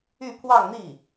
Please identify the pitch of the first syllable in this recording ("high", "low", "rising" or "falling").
falling